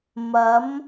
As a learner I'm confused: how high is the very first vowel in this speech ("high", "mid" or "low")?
low